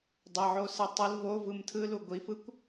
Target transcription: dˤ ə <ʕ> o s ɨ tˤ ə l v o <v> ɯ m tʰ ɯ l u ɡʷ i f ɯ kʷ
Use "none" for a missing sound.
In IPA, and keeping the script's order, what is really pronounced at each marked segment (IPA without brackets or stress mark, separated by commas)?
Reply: ʕ, v